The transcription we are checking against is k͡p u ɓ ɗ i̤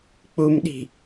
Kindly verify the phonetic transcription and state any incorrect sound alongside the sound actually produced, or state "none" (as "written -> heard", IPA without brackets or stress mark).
ɓ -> m